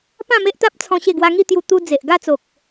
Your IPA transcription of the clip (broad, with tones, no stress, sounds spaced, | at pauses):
p ã˥˧ m e˦ ʔ t̪ a˦ p̚ t͡sʰ ɔ̃˧ ɕ e˥˧ ɡ w a˦ ŋ i˥˧ t̪ j u˧ t̪ u˦ d͡z e˨ ʔ ɡ a˥˧ t͡s o˨ k̚